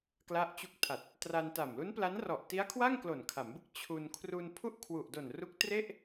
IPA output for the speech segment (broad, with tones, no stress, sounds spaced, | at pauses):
k l a˦˥ ʔ t͡ɕ u˦˥ k̚ tʰ a˨˩ t̚ | t r a˧ n t a˨˩ m l u˦˥ n p l a˦˥ n r ɔ˨˩ ʔ t i˦˥ a̯ kʰ w a˥˩ ŋ k l o˨˩ n kʰ a˩˦ m b ɯ˥˩ k̚ t͡ɕʰ u˧ n kʰ r u˧ n pʰ u˥˩ ʔ kʰ w u˨˩ ʔ d o˨˩ n r u˦˥ k̚ t r e˥˩ ʔ